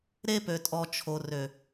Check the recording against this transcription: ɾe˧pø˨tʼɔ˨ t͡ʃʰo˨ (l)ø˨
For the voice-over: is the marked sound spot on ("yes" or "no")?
no